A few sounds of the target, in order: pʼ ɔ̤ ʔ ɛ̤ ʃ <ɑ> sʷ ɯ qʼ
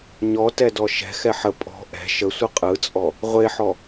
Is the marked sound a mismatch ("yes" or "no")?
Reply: yes